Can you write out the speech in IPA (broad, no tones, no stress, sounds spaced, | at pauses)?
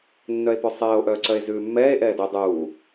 nː œ e̯ p ʉ sˤ ɛː o̯ ʔ œː ǀ œ e̯ z ʉː mː ɛː e̯ ʔ ɛː d ɵ dˤ uː